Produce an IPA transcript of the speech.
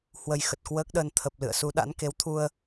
h w ə˧ j x ə˨˩ t̚ k w əː˦˥ k̚ ɗ əː˧ n t̪ʰ ə˨˩ p̚ l ɨ̰˧˨ ə̯ s u˨˦ ɗ a̰˧˥ n k e˨˦ w t̪ʰ u˧ ə̯

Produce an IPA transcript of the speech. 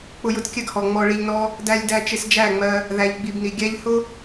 k͡p ʊ˧ j ʊ˧ t kʲ ɜ˦ ɡ h ɔ˨ ŋ͡m ɔ˧ ɭ i˧ ʎ n ɔ˦ | d æ˧ lʲ d æ˧ t͡ʃ ɪ˧ s d͡ʒ æ˦˨ ŋ͡m ɜ˧ | ð æ˨ ʎ ɡ͡b i˨ b n i˨ ɡʲ æ˦ ʎ h ʊ˦

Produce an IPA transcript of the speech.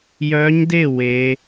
j œ˦˥ ɲ d e˥˧ w e˦˥

